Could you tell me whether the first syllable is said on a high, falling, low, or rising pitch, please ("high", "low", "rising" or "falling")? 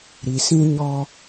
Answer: low